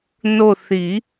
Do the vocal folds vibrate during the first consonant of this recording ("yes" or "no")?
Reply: yes